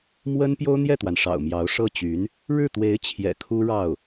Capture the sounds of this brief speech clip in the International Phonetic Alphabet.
m w ə˥ n p j o˥ ʊ̯ n̪ j ɛ˥˩ t̪ w a˩ n ʂ ɑ̰˨˩ ʊ̯ m j ɑ˧˥ ʊ̯ ʂ ɤ˥˩ t͡ɕ y˧˥ n | ɻ ɻ̩˥˩ t̪ w e˧˥ ɪ̯ t͡ɕʰ j ɛ̰˨˩ kʰ u˥ ɻ ɑ˥˩ ʊ̯

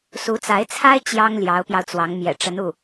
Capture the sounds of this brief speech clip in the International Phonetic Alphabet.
s u˧˥ t͡s a˧˥ ɪ̯ t͡sʰ a˥ ɪ̯ t͡ɕ j ɑ˥ ŋ l j ɑ˧˥ ʊ̯ p j ɑ˧ ʊ̯ t͡s w ɑ˧˥ ŋ m j ɛ̰˨˩ ʈ͡ʂ ə˧˥ n u˥˩

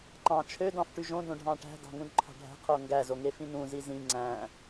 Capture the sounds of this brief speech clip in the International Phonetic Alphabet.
ǃ ɑ̃ t͡ʃʰ ø d ɑ̃ f ʈ y ʒ õ d õ ɖʱ ɑ̃ ʈ æ̤ d ɑ̤ ŋ ũ d ǃʰ ɑ̤ ɖʱ æ̤ qʰ o ŋ ɡ æ z o ŋ e f ĩ n ũ z i z ĩ ŋ͡ǀ æ̃

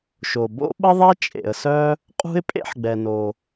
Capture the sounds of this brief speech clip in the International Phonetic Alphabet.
ʃ o˩ b o̰˥ ɓ ə˥ ðˤ ɛ˥ t͡ʃʼ ḛ˩ ə̯ s œ˥ | qʼ ṳ˥ ɪ̯ pʼ ḛ˥ ħ ɡ͡b ɛ˩ n o˩

